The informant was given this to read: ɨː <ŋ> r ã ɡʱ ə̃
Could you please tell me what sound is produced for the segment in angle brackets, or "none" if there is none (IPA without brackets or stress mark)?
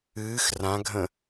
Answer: x